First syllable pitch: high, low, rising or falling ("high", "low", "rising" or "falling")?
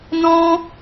high